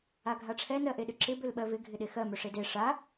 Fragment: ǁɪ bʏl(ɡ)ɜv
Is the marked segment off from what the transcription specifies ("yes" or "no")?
yes